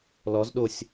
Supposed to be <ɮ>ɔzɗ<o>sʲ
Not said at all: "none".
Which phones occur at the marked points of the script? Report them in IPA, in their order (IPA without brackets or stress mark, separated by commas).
l, o